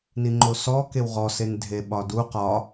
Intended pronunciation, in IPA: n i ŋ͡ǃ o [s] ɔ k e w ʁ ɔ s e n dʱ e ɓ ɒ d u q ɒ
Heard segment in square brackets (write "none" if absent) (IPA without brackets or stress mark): s